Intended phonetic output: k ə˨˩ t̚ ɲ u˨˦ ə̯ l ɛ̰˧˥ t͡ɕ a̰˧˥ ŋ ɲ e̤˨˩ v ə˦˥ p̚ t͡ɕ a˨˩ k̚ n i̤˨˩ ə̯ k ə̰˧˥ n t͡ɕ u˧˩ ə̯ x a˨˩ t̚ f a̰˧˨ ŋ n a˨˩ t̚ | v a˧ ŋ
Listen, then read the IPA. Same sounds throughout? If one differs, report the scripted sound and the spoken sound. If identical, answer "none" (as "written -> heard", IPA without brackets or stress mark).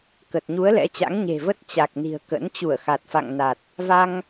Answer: p̚ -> t̚